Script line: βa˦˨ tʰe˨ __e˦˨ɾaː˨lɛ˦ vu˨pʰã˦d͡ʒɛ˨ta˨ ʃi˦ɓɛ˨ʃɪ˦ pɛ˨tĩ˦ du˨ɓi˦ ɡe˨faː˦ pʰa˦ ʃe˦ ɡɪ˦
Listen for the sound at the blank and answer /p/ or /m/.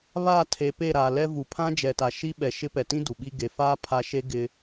p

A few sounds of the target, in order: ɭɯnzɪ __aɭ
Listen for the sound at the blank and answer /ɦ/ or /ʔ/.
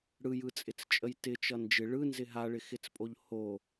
ɦ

